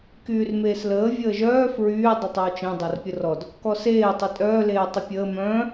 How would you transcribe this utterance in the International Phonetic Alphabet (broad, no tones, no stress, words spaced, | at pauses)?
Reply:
kyːrmeːsləː vʲəːʒœː fɹyː dˤɘtˤœwt͡ʃẽ dˤarpʲərɔd | kɔseː tˤytʼœː leːtˤəpʲəː mœ̃ː